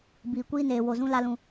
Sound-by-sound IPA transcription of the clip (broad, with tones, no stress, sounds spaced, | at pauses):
b iː˨ kʷ iː˦ n eː˨ w o˨ z ũ˦ l a˦ l ũ˦